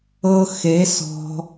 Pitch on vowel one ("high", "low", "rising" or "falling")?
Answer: high